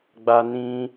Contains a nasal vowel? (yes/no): yes